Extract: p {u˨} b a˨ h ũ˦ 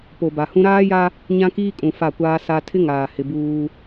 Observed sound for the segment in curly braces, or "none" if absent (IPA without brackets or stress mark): o˨